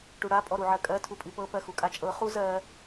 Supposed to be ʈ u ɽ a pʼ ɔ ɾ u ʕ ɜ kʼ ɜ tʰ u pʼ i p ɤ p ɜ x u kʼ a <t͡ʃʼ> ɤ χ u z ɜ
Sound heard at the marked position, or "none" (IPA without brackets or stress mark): t͡ʃʼ